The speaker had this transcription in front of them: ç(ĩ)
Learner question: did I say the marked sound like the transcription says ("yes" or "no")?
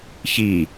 no